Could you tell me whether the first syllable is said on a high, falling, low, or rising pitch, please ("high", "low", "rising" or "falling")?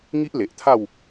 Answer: high